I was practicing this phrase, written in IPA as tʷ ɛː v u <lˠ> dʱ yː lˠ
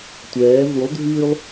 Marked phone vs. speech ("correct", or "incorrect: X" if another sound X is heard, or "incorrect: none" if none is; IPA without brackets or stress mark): correct